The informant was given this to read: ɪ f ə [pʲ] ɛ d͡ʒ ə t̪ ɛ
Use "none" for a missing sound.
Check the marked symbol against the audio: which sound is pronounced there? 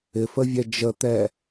vʲ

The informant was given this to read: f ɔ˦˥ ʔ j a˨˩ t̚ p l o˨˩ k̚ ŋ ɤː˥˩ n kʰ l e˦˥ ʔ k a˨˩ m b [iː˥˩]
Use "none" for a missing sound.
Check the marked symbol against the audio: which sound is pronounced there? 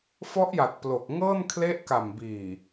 iː˨˩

